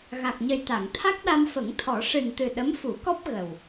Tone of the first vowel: low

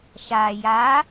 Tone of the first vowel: low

